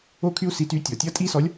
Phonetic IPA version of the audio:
o˥ kʰ y˥ u̯ s i˧˥ t yː˧˥ tʲ ɔ˩ tʲ ʌ˧˥ tʼ i˥ s ɔ˧˥ lʲ

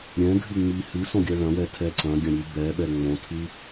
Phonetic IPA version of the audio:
ɾʲ ɛ̃ ɡʱ ɨ ŋ͡m i h ɨ s õ ɡʲ ɜ ɭ ɐ̃ w ɛ tʰ ɛ ǀ ɐ̃ ɡʲ ɐ̃ ɾʲ ɨ b ɛ ɓ ɛ ŋ͡m õ tʰ ɨ

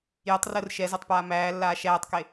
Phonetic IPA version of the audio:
j ə tˤ r əː r ʃ ɛ z ɛ tˤ p aː m æː lː aː ʃ æː tˤ k e

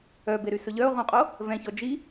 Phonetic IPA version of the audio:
œ b e ɾ y s ɵ ʎ œ o̯ ʁ ũ qʼ o | v ɛ̃ ç ɔ d͡ʒ i

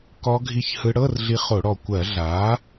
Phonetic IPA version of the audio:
k ɔ˦˥ ɡʱ i˦˥ ç h ɯ˦˥ ɽ ɤ˧˥˧ r ɮ i˧ χ o˧˩˧ ɽ ɔ˨˩ kʷ ɜ˧˩˧ ɮ aː˩˥

